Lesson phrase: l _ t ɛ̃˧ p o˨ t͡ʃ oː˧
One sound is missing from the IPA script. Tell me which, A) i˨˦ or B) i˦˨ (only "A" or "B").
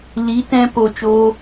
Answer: A